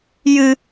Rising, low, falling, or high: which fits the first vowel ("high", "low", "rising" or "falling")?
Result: high